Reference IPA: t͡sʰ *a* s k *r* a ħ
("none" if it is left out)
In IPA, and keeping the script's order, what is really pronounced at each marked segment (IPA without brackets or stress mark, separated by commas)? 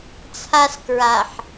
a, ɹ